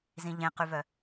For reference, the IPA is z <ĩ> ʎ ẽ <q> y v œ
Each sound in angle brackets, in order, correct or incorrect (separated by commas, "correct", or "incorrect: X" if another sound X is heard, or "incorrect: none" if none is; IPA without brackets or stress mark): correct, correct